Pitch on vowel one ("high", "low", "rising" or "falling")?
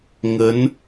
rising